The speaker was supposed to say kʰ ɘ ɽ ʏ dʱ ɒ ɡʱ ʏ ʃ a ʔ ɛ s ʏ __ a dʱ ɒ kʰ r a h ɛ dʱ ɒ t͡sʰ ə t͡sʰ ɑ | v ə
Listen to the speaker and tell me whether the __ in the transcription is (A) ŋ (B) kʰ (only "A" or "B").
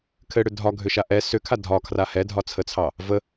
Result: B